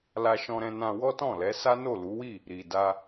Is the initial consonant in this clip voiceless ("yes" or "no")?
no